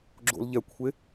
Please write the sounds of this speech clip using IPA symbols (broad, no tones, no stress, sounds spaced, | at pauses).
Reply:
ɡ͡ǁ o̰ l ʎ ɛ kʷʰ e